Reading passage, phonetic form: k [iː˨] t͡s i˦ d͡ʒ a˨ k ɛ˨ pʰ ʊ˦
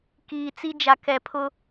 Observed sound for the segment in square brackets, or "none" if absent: iː˨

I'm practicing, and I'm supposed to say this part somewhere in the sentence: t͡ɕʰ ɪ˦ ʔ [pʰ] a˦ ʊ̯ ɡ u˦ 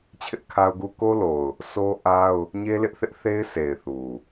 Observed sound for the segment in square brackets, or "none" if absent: kʰ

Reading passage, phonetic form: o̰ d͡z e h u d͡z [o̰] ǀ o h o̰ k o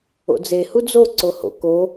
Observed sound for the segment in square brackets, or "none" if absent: o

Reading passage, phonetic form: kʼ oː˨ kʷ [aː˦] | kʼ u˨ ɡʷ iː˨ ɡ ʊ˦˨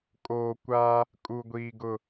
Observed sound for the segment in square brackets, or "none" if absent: aː˦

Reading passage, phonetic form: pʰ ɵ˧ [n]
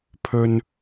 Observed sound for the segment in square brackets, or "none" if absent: n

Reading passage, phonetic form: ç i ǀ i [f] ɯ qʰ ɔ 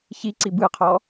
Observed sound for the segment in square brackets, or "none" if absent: b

